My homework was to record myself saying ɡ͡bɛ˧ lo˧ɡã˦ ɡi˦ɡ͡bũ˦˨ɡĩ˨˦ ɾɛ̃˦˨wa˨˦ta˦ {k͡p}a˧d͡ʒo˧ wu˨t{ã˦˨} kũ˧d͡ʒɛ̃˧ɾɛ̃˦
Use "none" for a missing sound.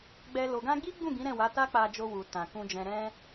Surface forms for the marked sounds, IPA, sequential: k͡p, ã˨

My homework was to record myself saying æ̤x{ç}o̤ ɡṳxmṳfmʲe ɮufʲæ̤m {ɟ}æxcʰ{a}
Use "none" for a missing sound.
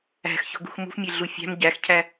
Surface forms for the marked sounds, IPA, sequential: ç, ɟ, æ

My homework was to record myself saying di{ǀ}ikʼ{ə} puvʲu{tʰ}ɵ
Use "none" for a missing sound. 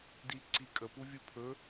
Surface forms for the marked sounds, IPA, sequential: ǀ, ə, pʰ

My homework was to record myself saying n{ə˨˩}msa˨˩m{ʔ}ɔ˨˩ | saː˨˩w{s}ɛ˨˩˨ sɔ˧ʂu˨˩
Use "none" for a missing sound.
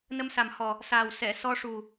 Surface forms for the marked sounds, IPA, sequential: ə˧, h, s

